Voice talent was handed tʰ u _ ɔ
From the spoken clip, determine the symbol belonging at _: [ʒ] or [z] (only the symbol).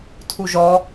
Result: ʒ